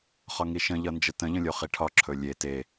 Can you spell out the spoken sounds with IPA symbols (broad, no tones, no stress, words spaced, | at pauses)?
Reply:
χɒŋiʃə̃ ʎʌnd͡ʒətə̃ ʎə̃lʲoχiʈʰɒ ǁʰɵlʲe te